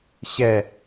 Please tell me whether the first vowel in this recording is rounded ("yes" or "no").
no